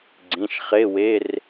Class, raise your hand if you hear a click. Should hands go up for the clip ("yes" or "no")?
yes